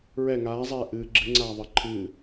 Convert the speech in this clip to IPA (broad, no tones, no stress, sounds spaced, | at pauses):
ɹ ɛ ŋ aː zˤ ɛː ʔ ɨː ɡ͡ǁ ɨ ŋ͡ǀ aː ðˤ əː ǃʰ ɨː